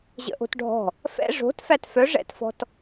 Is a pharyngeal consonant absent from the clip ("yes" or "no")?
yes